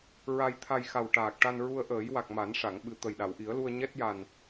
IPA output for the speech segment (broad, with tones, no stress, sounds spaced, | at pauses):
ɹ a˧ j t̪ʰ a˧ j x a˨˩ w ʈ aː˨˩ k̚ ʈ a˧ n ɹ u˧ ə̯ ʔ əː˨˩˦ j w a˨˩ k̚ m a˨˩˦ n ʂ a˨˩˨ ŋ ɓ ɨ˨˩ t̪ ə˨˩ j ɗ a˨˩˨ w ʔ i˨˩˦ ə̯ l u˧ ə̯ ɲ ɛ˦˥ t̚ j a˨˩ n